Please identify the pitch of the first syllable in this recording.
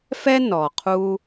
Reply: high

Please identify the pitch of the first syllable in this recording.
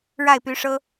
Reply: falling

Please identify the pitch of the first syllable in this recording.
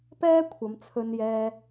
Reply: high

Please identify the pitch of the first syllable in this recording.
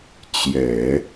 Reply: low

